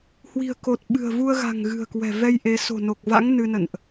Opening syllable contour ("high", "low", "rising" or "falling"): low